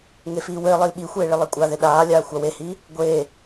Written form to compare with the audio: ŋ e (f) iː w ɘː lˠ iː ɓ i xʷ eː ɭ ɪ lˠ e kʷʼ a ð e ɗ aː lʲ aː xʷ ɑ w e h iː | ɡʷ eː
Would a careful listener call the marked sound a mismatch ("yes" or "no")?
no